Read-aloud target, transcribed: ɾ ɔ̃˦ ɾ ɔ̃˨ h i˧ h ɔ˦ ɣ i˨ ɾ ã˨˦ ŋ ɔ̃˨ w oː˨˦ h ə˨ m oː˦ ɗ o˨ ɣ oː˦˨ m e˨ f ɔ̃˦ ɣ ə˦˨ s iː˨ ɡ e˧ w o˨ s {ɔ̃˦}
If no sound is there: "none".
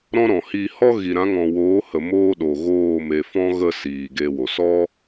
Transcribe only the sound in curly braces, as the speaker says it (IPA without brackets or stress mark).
ɔ˦